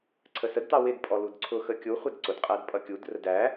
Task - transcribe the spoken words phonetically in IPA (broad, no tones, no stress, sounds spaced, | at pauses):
ǀʰ ə s ə d t ɑ w ɪ d pʼ ɔ l u d ǀʰ ʊ x ə kʲ u χʷ ɛ d ǀ ʊ d qʼ æ d pʼ ʌ kʲ u d r ə d æ